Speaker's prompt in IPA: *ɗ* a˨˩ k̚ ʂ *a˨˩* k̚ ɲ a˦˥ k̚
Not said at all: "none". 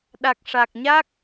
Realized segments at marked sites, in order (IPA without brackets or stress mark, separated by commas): ɗ, a˨˩